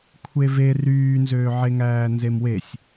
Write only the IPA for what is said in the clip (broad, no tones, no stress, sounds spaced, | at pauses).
kʷʰ e v e r yː n z øː ʕ e ŋ æː n z e m w e sʲ